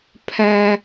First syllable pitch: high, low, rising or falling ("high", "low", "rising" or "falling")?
high